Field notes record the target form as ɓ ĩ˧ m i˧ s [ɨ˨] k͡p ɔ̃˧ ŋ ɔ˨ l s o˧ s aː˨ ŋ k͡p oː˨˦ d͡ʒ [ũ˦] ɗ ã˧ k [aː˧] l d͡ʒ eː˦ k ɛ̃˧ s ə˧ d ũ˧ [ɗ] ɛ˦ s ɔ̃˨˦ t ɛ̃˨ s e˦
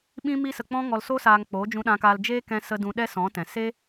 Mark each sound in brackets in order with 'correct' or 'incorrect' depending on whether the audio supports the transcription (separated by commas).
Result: incorrect, incorrect, correct, correct